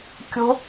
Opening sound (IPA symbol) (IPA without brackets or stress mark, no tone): kʲ